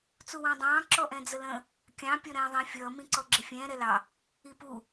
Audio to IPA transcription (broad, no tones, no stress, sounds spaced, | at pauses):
t͡s u w ɑ̃ dˤ ɑ̃ː ǁ ɔ ʔ ɛ̃ d͡z ə l ə̃ | kʲ ɑ̃ pʲ ɔ ɾ ɛ̃ː ðˤ ĩ fʲ ʌː m ĩ ǀ ɔ ɡ͡ǁ ɪ fʲ ɛ̃ː ɾ ɛ l ɑ | i p u